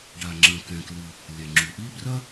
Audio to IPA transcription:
ɖa˩ŋ͡ǁɐ̃˩ kɛ̃˩klɨ˩ | lʲɛ˩ŋ͡ǁu˩ʔi˥ brɐ˥

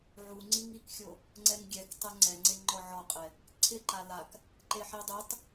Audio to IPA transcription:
ʕuŋ͡ǀiŋ ikxʲo | ŋ͡ǀɛŋɡʲɛktˤɛ ŋ͡ǀɛŋ͡ǀe ŋ͡ǃɔʕɔqʼɛ | ǀʰɪǃa lak | ǃeħidˤitˤ

